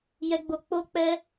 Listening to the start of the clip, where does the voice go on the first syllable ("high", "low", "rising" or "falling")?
high